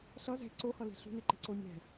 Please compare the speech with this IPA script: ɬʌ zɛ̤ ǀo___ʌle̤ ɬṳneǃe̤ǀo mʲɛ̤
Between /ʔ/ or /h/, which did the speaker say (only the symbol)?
h